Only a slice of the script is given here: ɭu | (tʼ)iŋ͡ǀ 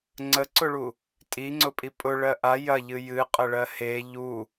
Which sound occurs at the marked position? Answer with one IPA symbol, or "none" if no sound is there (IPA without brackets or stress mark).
tʼ